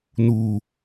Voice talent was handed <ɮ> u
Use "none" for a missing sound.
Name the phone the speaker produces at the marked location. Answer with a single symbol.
n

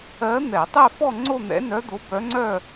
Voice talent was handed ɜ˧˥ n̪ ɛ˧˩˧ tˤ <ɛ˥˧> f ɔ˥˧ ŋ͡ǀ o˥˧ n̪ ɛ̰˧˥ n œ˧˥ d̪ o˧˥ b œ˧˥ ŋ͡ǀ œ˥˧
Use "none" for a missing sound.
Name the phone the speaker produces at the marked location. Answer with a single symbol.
ɛ˥˧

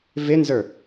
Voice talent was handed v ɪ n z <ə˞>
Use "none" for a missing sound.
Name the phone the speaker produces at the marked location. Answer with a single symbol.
ə˞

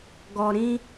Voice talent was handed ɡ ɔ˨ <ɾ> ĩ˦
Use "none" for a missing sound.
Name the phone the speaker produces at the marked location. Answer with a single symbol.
ɾ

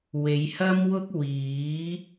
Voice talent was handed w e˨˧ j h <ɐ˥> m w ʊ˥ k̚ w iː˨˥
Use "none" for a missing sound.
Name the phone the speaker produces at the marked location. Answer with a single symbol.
ɐ˥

